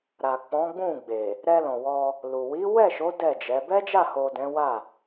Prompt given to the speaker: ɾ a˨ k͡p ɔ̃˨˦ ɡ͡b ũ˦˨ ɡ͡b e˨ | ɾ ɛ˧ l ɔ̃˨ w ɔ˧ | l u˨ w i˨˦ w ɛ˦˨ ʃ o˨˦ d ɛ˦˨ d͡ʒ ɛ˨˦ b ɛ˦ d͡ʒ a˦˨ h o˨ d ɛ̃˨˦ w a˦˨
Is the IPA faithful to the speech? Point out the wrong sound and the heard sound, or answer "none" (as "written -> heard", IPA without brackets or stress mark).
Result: none